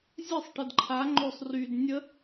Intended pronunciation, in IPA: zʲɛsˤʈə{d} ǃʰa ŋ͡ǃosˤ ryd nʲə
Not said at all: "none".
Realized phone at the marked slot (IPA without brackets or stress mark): d